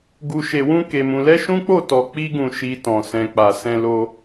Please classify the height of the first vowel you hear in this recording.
high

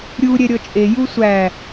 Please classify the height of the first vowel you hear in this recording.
high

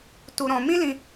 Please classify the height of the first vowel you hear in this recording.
high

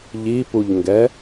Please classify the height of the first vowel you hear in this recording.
high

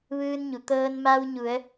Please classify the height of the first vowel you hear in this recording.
high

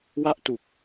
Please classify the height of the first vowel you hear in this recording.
low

